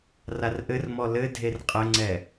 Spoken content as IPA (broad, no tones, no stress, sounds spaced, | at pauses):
r a r ʔ ɘ r m ɔ l ɘ dʱ e r qʼ ɘ ŋ͡ǀ ɛ